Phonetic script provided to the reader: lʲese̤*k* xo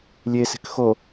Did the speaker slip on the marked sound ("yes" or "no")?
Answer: no